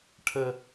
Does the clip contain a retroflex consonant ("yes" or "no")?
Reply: yes